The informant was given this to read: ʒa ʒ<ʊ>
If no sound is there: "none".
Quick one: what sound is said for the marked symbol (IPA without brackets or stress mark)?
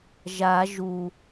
u